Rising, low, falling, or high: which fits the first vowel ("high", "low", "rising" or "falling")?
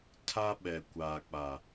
high